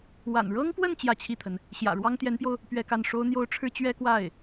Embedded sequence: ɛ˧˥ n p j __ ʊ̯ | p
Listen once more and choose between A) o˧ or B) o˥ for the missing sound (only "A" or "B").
A